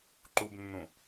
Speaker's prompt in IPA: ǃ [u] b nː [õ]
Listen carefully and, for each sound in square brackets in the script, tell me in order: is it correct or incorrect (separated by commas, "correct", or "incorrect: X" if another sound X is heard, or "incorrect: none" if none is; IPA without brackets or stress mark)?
correct, incorrect: ũ